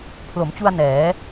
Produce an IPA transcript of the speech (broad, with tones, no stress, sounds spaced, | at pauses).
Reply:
pʰ l o˩˦ m t͡ɕ u˧ a̯ n ɛː˩˦